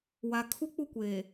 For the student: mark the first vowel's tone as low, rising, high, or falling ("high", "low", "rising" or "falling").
low